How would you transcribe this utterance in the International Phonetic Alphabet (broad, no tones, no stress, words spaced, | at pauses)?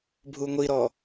bʱuŋʷiɾɔ